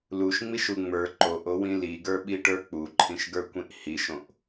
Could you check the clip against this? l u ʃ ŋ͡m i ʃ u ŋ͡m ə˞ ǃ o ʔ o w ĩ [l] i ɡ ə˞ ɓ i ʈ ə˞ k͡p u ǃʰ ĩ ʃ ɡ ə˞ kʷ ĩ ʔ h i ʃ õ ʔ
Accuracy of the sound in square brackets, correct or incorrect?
correct